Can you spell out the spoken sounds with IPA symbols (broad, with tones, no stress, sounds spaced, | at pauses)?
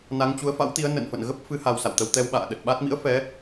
n a˨˦ ŋ t͡ɕ u˨˦ ə̯ f a̰˧˥ w t̪ i˨˦ ə̯ n ə̰˧˨ n f ə̰˧˨ n ɣ ə˦˥ p̚ f ɨ˨˦ h a˧ w s a̰˧˨ w t̪ ə˧ w t̪ ɛ˧ w ɓ a̰ː˧˨ ɗ ə˨˩ t̚ ɓ a˦˥ t̚ m ḭ˧˥ ə̯ f ɛ˨˦